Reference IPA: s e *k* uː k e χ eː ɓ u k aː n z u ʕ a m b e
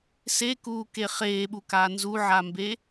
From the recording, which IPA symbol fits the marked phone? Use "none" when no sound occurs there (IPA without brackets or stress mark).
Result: k